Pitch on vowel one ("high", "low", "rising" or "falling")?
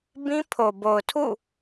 high